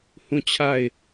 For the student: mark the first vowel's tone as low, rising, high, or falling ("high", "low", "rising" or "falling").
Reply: falling